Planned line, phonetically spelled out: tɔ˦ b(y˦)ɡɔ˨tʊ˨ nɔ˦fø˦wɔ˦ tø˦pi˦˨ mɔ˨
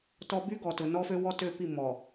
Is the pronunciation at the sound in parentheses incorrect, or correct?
correct